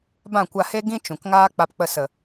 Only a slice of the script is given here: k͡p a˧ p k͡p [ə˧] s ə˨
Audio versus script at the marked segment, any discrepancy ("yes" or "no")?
no